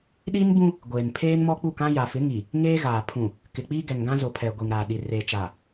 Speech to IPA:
ɗ i˦ n b ũ˦ | ɡʷ eː˨ n pʰ eː˦ n m ɔ˦ k͡p u˦˨ k ã˦ j a˨ f ɪ˨˦ ŋ i˨ | ŋ eː˦ ɣ aː˨ pʰ ũ˨ | k ɪ˨ k͡p iː˦ ɡ ɛ˨ ŋ ɡ ã˦ z ʊ˨ pʰ ɛ˨ ɡʷ i˨ ŋ ɾ aː˨ ɗ i˨ r e˨ t͡ʃ a˨

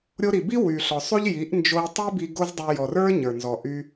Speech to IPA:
ɾʲ o˧ ɾ i˨ b i˦ w y˨ ɬ ɔ˨ sˤ y˦ ʎ j i˨˦ ʔ n d͡ʒ o˧ i̯ tˤ i˦ b i˧ ɡ o˦ z dˤ y˧ j ɔ˨ r ə˞˦ ɲ ə˞˨ n z ɔ˨ ʔ y˧

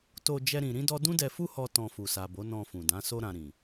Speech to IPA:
t o˧ d͡ʒ ɛ˦ ɾ ĩ˧ ɾ ĩ˦ d ɔ˦ d ũ˦ d ɛ˧ f u˦ h ɔ˧ t ɔ̃˧ f u˨ s a˨ b o˨˦ n ɔ̃˧ f ũ˨ d ã˨˦ s o˦ ɾ ã˧ ɾ ĩ˨

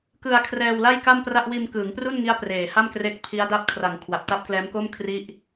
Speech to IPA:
k ɯ˧ a̯ kʰ r ɛː˧ w l a˥˩ j k a˥˩ m p r a˥˩ ʔ w iː˧ m k ɯː˩˦ ŋ p r u˥˩ n ŋ i˦˥ a̯ p r eː˨˩ h a˥˩ m k r e˦˥ k̚ pʰ i˦˥ a̯ d a˦˥ p̚ kʰ r a˩˦ ŋ kʰ w a˨˩ p̚ t a˦˥ p̚ k l ɛː˦˥ m k o˥˩ m kʰ r i˦˥ ʔ

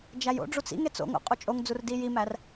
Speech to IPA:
d͡ʒ æ j o̰ ɖ͡ʐ u t͡s ḭ ŋ e t͡s o̰ ŋ o̰ qʼ u t͡ʃʼ o ŋ d͡z u r d i j i m æ r

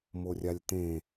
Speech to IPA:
m o rʲ a lʲ t̪ ẽ

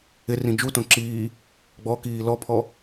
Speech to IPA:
ɪ r ĩ d͡ʒ u t õ ǁ iː | ɡ͡b ɔ k iː l ɔ pʰ ɔ

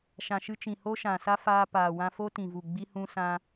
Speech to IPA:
ʃ ã˨ ʃ ɨ˧ t͡ʃ ĩ˨ h o˦ ʃ ã˨ s a˦ f aː˧ p aː˨ w ã˧ f o˦ t ĩ˨ v u˨ ɡ͡b i˦ h ũ˦ s ã˧

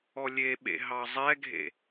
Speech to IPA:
ɔ lʲ e ɓ ḛ ɦ ɑ zˤ ɛ ɡʱ ḛ

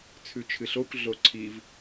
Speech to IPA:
t͡sʰ ʉ t͡ʃʰ ɨ ɬ o kʷ ɮ o ǀʰ i v

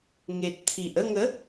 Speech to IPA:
ŋ e˨ t̚ t̪ʰ i˨ ʔ ə˥˧ ŋ ə˨˦

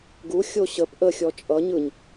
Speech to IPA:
ɡ u xʲ o ɕ ə p ʔ ə xʲ ɔ t͡ʃʼ ʌ ɲ ɯ ɲ

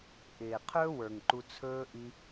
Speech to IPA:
ʔ ɪː˨ qʰ ɵː˦ w ə˞˨ ŋ ǃ u˧ t͡sʰ ɵː˦ ʔ i˧

